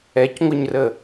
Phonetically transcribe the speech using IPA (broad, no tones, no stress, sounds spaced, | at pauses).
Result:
ɛ c ŋʷ ə ɲ r ə